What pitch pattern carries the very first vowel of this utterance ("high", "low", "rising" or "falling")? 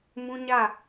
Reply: high